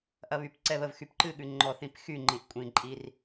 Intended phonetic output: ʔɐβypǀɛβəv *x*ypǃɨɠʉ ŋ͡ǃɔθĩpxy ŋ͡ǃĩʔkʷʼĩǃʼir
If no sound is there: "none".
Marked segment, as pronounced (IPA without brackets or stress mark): x